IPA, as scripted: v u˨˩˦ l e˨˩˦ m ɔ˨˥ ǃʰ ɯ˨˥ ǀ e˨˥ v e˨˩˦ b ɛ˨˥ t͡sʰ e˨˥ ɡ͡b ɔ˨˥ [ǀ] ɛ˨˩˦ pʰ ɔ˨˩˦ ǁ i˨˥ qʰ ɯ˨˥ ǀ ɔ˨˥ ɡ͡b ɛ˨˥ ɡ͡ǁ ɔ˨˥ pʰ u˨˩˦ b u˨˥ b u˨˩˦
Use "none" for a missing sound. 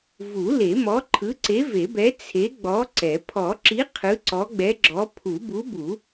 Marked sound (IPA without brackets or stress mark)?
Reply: ǀ